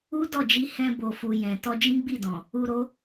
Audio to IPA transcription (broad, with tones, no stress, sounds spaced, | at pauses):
u˦ d ɔ˦˨ d͡ʒ i˧ h ɛ̃˧ b o˨ f u˨ j ɛ̃˨ t ɔ˧ d͡ʒ ĩ˦ ɡ͡b i˦˨ d ɔ̃˨ | u˧ ɾ o˦